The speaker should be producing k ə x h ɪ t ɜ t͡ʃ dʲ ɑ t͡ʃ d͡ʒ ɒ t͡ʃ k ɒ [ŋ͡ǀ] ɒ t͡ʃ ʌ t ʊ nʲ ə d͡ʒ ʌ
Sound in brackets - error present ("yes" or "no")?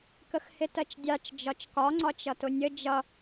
no